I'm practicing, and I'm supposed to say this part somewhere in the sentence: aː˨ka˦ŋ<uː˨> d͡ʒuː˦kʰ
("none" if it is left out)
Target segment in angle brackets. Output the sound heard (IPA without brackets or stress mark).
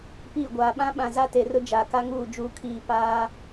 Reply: uː˦˨